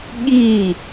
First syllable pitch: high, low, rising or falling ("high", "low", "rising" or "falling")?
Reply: falling